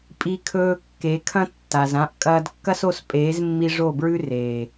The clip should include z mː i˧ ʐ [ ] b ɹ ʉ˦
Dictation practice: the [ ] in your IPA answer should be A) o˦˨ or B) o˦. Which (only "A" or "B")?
A